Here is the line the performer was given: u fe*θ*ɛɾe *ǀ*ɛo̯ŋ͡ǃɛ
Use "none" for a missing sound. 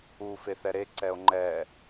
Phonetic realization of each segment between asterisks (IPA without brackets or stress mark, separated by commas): θ, ǀ